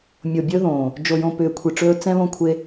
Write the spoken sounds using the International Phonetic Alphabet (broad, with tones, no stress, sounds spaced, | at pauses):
mʲ o˨ bʲ ɵ˦ ð õː˨ | d͡ʒ o˨ j õ˨ p ʏː˨ kʷʰ i˨ ʈ͡ʂ ɵː˧ t͡s ɛ̃˦ β õ˦ kʷʰ e˧